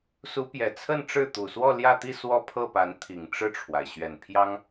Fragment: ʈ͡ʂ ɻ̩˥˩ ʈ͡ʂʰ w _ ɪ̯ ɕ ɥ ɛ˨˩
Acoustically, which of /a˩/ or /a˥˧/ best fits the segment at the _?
a˩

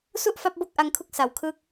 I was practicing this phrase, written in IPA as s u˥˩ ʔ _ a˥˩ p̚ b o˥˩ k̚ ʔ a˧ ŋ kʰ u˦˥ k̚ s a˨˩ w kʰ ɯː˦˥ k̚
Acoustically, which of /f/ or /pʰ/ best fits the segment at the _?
f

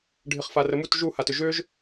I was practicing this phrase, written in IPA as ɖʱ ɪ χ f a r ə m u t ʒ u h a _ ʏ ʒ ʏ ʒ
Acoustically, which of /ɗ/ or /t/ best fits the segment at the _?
t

